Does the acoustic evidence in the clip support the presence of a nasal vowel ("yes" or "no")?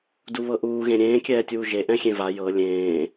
yes